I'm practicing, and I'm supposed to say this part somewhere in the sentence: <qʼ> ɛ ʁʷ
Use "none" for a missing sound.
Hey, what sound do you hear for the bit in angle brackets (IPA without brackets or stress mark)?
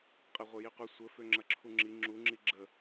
qʼ